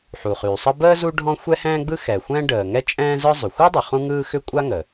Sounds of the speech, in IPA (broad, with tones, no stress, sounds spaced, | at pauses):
ħ u˩ χ yː˩ sˤ ə˥ b əː˥ z u˥ ɖʱ ɔ̃˥ xʷ ɛ˥ h ɛ̃ː˥ ɡ͡b ɯ˥ x ɛ˩ xʷ ɛ̃ː˥ ɖ əː˩ ŋ ɛ˥ t͡ʃʼ ɛ̃ː˥ z ɯ˥ zˤ ʏ˩ xʷ ɯ˥ dˤ ə˩ χ ũ˥ ŋ ɯː˥ x ʏ˥ kʷʼ a˥ ŋ ə˩